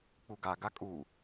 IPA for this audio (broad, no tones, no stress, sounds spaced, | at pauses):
k͡p u ɡ a ɡ a kʼ u